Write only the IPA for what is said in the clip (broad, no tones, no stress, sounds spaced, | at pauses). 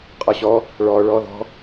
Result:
qʼ ɒ ɕ ɔ | ɭ ɔ ɭ ɔ ð ɔ̤